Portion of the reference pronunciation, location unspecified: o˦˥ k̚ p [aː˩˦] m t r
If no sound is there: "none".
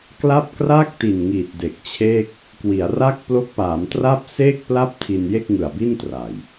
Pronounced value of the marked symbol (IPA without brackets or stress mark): aː˩˦